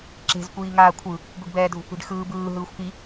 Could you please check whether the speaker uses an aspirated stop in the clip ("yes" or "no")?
yes